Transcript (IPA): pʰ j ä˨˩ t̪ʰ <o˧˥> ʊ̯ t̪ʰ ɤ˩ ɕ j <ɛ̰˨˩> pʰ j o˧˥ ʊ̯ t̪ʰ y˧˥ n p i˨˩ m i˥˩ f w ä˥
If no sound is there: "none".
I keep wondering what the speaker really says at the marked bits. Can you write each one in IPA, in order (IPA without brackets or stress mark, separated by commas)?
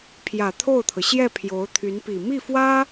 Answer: o˥˩, ɛ˥˩